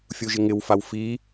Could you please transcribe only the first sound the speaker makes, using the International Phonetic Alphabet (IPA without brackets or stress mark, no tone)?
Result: fʲ